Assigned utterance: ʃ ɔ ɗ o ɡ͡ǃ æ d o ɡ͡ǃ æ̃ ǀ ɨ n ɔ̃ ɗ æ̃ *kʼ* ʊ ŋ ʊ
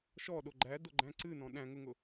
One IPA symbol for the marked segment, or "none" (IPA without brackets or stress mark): ŋ